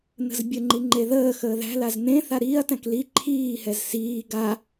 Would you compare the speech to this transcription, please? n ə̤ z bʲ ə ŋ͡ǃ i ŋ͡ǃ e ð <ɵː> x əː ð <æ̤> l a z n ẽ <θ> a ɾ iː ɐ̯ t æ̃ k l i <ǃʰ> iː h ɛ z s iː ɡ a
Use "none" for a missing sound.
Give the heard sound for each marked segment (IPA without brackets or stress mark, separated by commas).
əː, æ̤, θ, ǃʰ